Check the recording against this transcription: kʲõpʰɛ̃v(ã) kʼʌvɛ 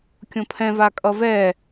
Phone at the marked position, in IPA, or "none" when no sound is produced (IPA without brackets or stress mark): a